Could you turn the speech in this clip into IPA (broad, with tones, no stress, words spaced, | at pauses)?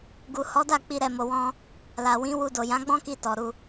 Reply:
ɡu˨hɔ˨˦da˦˨k͡pi˧ ɾɛ˧mo˧wɔ̃˦ | la˨wĩ˨˦wu˧ do˨jã˨˦ɡ͡bɔ̃˦ki˧ tɔ˨ɾu˧